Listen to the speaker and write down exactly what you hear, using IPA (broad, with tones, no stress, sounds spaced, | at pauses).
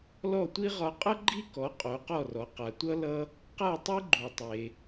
l ɔ˥˩ tʷ i˥ ʁ ɒ˧ qʼ ʌ˥ ɡ͡ǃ i˥ k ɔ˩˥ qʼ o˩˥ q ɔ˥˩ r ɔ˩˥ q a˩ tʷ ʌ˥ l ʌ˥ | q a˥˩ tˤ e˥ ɡ͡ǃ u˩ tˤ e˩